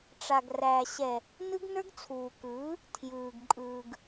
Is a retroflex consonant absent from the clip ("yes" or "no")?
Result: no